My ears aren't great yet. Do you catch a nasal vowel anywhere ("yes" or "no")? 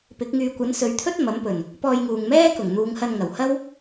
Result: no